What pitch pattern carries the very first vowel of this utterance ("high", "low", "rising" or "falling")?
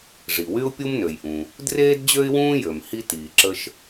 low